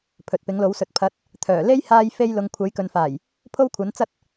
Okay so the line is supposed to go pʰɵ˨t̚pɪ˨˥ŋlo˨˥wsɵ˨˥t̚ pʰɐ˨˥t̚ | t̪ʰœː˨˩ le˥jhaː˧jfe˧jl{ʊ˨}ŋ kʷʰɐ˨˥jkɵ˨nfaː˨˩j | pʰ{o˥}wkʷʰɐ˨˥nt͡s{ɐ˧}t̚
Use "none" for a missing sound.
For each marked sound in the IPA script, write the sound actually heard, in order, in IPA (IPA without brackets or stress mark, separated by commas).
ʊ˨, o˥, ɐ˥